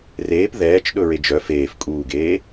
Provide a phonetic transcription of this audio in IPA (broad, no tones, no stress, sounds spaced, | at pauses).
r eː p ð ɛː t͡ʃ ɗ ɵ ɹ e d͡ʒ œ f eː f kʼ uː ɡ eː